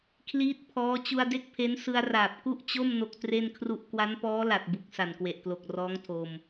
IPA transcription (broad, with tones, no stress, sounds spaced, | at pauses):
kʰ l iː˦˥ t̚ pʰ ɔː˦˥ t͡ɕ u˧ a̯ d e˥˩ k̚ pʰ e˦˥ n s ɯ˧ a̯ r aː˨˩ p̚ k u˥˩ ʔ t͡ɕ o˥˩ m n o˦˥ k̚ t r e˥˩ n kʰ r u˥˩ ʔ k w a˦˥ n p ɔː˦˥ l a˨˩ t̚ b u˨˩ k̚ s a˨˩ n k w e˨˩ ʔ k l o˨˩ k̚ r ɔː˦˥ ŋ tʰ o˧ m